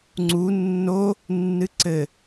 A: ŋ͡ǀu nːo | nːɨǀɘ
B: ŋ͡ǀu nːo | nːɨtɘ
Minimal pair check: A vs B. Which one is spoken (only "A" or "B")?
A